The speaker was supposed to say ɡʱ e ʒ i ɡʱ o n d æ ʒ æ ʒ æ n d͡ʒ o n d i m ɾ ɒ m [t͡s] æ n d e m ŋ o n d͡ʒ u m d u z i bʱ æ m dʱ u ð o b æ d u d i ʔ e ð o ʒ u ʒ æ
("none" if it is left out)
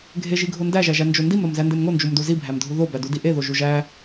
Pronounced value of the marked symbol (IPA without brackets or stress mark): z